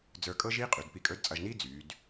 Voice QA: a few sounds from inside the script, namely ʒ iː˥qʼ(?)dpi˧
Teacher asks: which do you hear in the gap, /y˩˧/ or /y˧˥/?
y˩˧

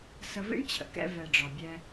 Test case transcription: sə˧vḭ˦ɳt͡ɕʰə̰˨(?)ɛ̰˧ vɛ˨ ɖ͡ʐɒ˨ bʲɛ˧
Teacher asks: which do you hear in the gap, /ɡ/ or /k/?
k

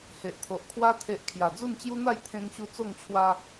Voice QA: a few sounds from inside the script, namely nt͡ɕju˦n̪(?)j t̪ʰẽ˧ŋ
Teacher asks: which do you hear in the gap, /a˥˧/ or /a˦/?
a˥˧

